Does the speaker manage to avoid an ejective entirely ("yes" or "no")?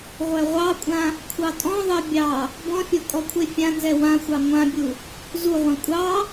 no